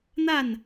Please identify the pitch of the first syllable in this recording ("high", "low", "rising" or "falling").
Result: falling